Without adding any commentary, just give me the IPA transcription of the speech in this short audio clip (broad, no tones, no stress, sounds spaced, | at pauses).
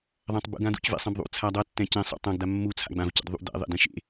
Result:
ðˤ ã tˤ b ṵ ɡ ã d ṵ c v ḛ sˤ ɛ̃ b ðˤ ṵ t͡sʰ a dˤ ʌ tː ɛ̃ c ẽ sˤ ṵ tˤ ã ɡ d a mː u t͡sʰ a̰ ɡ͡b ã v c ḛ d ðˤ ṵ d ɛ̰ ðˤ ḛ d ẽ ʃ ḛ